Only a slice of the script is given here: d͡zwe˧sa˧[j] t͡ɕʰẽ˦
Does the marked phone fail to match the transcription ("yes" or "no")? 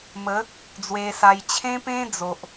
no